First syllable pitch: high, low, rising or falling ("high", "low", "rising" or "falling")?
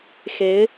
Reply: rising